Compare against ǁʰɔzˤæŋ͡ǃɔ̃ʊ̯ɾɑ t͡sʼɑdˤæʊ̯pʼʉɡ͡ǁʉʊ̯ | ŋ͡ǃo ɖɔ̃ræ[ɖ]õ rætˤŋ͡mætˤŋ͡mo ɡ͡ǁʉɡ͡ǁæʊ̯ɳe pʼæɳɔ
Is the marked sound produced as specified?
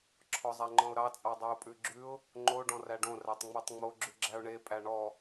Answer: yes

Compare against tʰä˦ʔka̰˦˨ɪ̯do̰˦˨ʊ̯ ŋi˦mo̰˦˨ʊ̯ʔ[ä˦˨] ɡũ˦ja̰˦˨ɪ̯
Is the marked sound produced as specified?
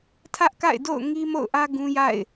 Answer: no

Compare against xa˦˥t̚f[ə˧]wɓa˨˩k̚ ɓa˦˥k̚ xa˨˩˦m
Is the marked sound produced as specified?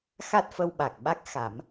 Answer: yes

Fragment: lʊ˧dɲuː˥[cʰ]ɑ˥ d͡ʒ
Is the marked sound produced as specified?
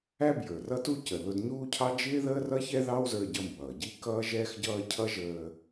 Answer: yes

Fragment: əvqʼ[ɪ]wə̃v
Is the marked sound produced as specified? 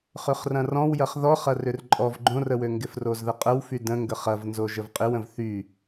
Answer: yes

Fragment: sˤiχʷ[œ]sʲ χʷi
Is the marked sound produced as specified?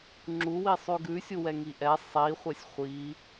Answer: no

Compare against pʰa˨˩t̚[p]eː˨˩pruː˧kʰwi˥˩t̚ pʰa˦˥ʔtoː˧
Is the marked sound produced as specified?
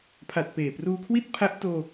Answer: yes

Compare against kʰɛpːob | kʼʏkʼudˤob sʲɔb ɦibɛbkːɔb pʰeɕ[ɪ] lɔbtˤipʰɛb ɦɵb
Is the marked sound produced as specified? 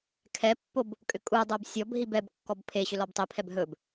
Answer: no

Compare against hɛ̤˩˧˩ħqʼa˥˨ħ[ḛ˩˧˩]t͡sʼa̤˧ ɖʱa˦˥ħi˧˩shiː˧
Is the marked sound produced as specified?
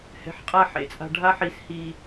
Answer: yes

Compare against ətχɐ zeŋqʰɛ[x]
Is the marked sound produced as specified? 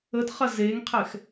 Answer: yes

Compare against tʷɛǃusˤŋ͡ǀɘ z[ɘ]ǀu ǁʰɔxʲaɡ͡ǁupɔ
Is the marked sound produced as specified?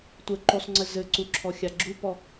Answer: yes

